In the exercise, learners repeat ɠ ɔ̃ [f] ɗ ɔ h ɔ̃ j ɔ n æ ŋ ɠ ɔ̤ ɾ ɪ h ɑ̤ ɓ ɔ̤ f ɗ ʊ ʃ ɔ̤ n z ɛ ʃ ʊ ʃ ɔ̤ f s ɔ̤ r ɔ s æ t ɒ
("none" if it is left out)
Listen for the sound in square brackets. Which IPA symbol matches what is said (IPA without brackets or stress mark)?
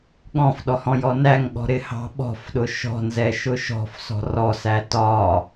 f